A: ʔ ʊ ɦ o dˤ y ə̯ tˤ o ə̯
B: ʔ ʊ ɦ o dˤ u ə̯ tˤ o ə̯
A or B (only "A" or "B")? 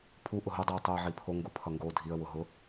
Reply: B